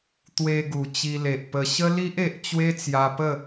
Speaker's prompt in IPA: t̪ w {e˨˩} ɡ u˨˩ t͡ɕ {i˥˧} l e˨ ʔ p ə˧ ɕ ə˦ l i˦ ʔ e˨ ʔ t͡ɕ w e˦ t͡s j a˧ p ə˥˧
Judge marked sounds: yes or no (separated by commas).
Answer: no, no